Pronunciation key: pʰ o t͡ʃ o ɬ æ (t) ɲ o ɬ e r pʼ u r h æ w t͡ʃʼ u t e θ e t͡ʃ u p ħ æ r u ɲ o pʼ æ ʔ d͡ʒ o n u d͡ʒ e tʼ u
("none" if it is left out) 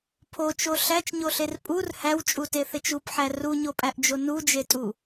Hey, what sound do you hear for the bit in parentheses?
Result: t͡ʃ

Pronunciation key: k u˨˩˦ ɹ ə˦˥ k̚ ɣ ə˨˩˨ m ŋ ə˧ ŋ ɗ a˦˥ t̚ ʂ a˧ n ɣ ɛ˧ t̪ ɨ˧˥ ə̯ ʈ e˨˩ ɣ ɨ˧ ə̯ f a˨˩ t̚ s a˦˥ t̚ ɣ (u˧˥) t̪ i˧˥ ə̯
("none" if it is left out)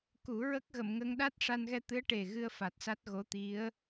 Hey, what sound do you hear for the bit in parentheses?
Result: o˧˥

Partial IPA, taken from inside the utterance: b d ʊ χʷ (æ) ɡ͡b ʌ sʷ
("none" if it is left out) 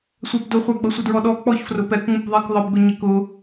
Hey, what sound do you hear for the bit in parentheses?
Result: æ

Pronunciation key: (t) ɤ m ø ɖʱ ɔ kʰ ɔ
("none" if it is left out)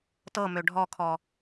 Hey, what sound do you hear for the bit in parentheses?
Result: t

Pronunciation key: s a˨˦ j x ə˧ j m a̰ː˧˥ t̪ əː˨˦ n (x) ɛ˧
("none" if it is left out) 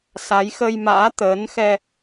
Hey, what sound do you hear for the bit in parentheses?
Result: x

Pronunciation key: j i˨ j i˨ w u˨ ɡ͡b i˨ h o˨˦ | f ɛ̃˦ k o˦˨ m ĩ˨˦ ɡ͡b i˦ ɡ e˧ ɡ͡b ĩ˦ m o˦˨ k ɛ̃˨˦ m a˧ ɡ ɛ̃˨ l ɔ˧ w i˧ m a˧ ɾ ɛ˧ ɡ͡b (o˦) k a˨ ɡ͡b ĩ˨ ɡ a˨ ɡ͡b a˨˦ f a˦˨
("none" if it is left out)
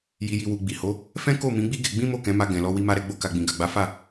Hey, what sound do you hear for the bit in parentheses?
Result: o˧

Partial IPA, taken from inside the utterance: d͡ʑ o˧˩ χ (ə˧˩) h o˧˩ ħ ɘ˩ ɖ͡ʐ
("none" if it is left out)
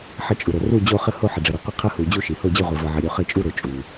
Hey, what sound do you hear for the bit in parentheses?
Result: ə˧˩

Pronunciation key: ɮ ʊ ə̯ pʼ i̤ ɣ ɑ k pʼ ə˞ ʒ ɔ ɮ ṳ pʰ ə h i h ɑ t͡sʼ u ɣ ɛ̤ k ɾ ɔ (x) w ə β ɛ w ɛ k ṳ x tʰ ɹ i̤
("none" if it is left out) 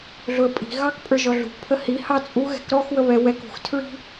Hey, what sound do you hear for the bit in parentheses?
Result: x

